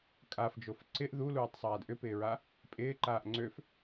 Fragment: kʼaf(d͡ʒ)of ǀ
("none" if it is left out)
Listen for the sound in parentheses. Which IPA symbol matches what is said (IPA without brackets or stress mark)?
d͡ʒ